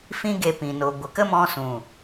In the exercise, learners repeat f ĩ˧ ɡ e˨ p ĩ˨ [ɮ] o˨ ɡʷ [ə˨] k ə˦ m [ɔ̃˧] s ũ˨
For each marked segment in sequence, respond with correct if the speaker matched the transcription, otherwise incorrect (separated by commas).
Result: incorrect, correct, correct